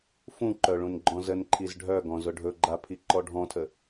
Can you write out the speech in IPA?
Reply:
fũǃœɭũnɡ͡ǃɔ̃ zənǃʰiz ɖʱœɡɔ̃zʊ ɖʱɵɡ͡ǃapʰiǃɔ ɖʱɔ̃tʰə

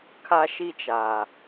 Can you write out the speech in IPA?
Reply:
kʰa˦ʃi˦t͡ʃa˨

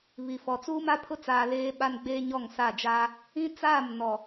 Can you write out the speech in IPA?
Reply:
βi˨fɔ˨ t͡suː˦ma˦pʰʊ˦t͡saː˨ leː˦ ɓa˦nɡ͡beː˦ ɲɔ˦˨ŋsa˦˨d͡ʒaː˦ | ĩ˦t͡saː˦˨m nɔ˨

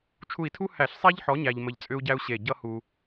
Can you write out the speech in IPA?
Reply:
t͡ʃʰu˧˩i̯tʰu˥ hæ˧˩˧ɬsˤæ˥ʎħɔ˨˥ ɲæ˧ʎmə˧˩ʎt͡sʼʏ˥u̯ɟæ˥u̯ ɕe˧˩ ɟʌ˥hu˧

